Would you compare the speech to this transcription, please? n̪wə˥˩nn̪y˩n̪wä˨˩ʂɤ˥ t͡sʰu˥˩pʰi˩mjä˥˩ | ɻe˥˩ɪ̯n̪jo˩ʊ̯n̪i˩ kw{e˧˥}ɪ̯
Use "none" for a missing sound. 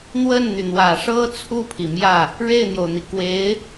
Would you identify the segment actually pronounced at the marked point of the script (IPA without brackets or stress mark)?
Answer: e˧˥